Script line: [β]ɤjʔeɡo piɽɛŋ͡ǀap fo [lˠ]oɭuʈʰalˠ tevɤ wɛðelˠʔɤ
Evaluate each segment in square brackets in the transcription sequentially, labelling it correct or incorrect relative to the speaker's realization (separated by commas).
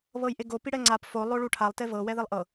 correct, correct